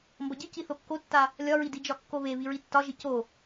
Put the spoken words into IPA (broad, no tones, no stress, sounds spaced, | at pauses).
m b ʌ ɟ i c i θ o kː o tː a | lʲ ɒ ɹ i d i d͡ʒ ɒ kː o β e β i ɹ i tː ɒ ʒ i c o